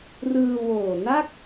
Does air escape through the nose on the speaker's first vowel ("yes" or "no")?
no